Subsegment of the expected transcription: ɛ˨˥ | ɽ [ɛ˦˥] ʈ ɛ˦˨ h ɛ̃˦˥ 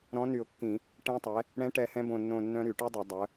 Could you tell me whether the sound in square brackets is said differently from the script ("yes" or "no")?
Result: yes